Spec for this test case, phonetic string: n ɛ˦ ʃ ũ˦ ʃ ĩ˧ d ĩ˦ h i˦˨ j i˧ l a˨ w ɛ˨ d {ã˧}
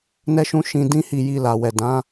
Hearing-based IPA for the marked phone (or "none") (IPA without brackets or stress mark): ã˨˦